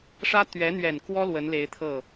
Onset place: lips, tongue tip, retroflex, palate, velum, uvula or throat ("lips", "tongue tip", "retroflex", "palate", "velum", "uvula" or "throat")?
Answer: retroflex